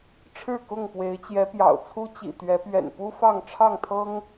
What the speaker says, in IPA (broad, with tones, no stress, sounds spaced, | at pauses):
ʈ͡ʂʰ ɻ̩˥˨ k ʊ˥˨ ŋ p w e˨˦ ɪ̯ t͡ɕ j ɛ˨˦ p j ɑ̰˨˩ ʊ̯ t͡sʰ u˦ t͡ɕ ḭ˨˩ t̪ ɥ ɛ˨˦ p ɥ ɛ̰˨˩ n p u˦ f ɑ˥˨ ŋ ʈ͡ʂʰ ɑ˥˨ ŋ t̪ʰ ɤ˦ ŋ